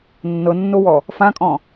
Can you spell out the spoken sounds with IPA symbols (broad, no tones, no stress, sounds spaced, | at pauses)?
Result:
nː ɤ nː o w ɔ | f ã kʼ ɔ̃